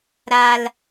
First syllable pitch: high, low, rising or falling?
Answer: high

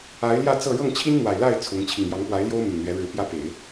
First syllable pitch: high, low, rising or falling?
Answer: rising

